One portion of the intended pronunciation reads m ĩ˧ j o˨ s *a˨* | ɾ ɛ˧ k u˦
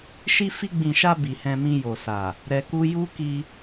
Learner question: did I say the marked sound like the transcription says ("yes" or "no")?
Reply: yes